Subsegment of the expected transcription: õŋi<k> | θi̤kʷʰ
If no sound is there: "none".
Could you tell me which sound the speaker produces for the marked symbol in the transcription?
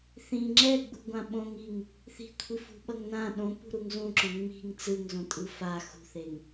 ŋ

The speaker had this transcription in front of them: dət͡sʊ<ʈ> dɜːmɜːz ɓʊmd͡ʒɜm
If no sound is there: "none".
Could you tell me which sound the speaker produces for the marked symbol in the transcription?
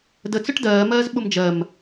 ʈ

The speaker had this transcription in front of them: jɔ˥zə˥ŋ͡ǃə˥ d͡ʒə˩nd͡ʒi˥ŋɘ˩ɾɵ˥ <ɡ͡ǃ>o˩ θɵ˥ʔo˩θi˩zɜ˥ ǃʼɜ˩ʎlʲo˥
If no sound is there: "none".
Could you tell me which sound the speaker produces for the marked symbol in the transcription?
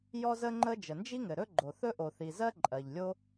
ɡ͡ǃ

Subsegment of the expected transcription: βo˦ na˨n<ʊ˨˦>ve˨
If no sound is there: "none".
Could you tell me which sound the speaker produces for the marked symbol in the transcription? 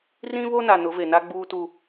ʊ˨˦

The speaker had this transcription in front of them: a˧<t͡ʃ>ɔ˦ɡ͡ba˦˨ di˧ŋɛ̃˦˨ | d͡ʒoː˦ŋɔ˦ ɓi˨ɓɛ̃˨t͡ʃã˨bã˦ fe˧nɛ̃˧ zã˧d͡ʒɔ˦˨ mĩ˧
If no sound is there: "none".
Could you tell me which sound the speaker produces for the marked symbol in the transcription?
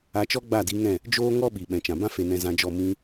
t͡ʃ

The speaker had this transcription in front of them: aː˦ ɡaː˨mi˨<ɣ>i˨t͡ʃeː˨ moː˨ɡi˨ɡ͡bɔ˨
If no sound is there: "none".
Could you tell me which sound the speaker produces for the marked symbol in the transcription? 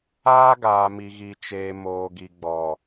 ɣ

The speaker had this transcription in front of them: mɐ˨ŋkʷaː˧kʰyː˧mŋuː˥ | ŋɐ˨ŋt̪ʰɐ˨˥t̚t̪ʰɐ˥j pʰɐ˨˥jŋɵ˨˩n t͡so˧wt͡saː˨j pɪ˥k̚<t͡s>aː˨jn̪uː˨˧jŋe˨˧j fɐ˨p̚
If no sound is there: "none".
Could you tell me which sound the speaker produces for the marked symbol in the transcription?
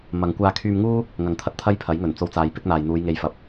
n̪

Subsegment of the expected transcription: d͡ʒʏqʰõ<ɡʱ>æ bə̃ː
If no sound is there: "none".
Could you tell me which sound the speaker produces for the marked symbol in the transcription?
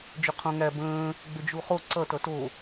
ŋ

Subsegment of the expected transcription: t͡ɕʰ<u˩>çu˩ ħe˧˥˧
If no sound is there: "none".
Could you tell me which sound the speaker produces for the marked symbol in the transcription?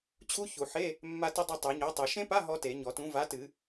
u˦˥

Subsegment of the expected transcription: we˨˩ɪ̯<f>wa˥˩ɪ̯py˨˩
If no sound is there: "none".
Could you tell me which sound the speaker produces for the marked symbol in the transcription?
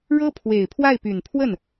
pʰ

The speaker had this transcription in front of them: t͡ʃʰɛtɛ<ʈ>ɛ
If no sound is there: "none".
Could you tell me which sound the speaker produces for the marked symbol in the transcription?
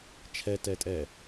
tʼ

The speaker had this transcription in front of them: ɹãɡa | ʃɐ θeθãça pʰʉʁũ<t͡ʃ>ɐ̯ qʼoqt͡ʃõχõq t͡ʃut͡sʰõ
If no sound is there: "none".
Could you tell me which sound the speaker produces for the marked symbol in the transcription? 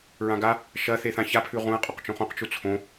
none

